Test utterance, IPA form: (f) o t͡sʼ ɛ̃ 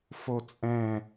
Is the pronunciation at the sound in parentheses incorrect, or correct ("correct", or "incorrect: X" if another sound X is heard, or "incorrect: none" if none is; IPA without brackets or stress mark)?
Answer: correct